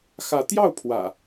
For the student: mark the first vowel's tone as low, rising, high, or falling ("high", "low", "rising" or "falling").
rising